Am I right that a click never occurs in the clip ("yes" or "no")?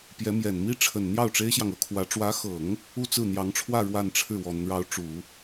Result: yes